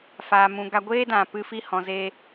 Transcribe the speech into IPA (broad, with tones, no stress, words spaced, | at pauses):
faː˨mũ˨ɡa˧ ɡʷeː˦dã˨ pɨ˧fi˦ hɔ̃˨zeː˧